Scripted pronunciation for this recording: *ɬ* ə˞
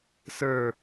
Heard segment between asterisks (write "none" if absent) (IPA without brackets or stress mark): s